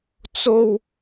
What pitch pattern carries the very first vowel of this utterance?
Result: high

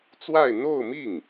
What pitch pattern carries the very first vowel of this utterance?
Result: falling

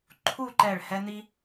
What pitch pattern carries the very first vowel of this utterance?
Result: falling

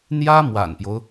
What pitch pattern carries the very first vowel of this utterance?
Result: high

